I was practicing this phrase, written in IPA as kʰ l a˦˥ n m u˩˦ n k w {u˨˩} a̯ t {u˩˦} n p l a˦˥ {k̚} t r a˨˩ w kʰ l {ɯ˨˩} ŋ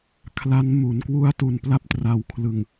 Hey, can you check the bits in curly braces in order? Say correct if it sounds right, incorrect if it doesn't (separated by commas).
incorrect, incorrect, incorrect, correct